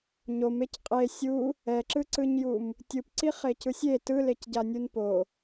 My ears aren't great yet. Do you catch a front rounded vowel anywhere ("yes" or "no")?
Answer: no